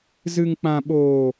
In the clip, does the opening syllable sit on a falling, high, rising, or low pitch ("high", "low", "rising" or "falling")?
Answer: low